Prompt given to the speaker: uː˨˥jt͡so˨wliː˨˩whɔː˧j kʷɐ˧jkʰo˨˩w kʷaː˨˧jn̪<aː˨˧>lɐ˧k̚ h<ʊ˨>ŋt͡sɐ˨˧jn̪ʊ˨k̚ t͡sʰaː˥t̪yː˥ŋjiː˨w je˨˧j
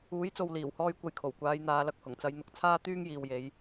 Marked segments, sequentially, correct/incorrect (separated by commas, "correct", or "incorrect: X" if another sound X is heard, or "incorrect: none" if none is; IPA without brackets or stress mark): correct, incorrect: ʊ˨˩